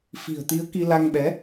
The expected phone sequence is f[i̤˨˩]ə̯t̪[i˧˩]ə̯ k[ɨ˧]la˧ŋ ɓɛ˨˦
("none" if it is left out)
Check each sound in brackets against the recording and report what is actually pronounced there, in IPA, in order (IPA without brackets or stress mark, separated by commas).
i̤˨˩, i˨˦, i˧